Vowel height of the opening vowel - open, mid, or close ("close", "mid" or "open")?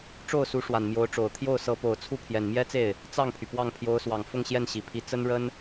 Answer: mid